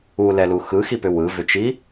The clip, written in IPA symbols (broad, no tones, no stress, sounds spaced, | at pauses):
u l ɛ l u x ɯ x i p ʏ w ɯ v ʏ t͡ʃ i